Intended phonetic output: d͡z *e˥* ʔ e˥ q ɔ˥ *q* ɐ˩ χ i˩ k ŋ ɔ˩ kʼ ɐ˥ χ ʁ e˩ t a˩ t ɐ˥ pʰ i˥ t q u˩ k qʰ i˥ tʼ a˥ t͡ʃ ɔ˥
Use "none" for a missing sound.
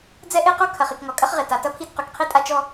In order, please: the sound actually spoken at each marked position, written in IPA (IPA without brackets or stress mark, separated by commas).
ɛ˥, kʰ